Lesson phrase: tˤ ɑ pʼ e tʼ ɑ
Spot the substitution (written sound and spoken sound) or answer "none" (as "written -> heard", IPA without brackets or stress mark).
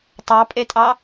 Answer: none